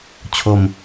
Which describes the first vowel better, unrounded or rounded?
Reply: rounded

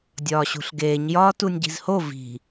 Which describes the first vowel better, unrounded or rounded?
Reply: rounded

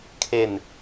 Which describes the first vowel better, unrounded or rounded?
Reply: unrounded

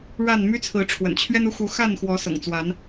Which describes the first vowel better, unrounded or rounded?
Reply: unrounded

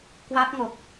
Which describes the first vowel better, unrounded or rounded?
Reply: unrounded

